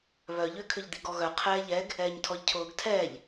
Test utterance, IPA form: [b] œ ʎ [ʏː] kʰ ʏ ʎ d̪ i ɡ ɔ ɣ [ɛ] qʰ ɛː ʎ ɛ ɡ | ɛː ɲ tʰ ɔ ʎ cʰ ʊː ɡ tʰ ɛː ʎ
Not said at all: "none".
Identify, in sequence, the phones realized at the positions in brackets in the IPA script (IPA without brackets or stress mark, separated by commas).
β, ʏː, œ